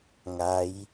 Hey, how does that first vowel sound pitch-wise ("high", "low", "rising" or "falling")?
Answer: rising